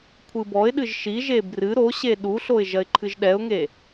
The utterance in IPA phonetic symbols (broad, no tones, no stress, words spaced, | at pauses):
kʷʰɨbɔɪ̯ɗɨʒ ʃiʒe brɨ ɾo ɕeɗuɬoɪ̯ ʒɐɪ̯ǃʰɨʒɗɛʊ̯ŋe